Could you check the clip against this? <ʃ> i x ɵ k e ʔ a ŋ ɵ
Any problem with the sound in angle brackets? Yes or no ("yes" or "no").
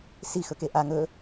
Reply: yes